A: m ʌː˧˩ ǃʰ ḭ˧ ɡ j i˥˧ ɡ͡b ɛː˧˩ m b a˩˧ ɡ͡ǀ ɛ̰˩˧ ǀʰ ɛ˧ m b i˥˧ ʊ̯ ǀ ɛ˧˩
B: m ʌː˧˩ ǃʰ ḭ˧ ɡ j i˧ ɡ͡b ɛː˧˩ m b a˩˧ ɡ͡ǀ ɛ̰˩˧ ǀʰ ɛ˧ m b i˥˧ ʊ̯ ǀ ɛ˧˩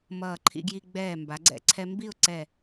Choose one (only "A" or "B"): B